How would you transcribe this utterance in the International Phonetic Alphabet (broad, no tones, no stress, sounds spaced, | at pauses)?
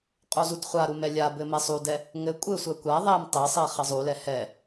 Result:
qʼ u z u d χʷ a ɾ u m ɛ lʲ a b ɘ m ɛ sˤ u d ɛ | ŋ ɘ kʷʼ ɘ sʷ ɛ kʷ a ðˤ ɛ m tˤ ɘ sˤ e χ ɘ zˤ u l ɛ h ɛ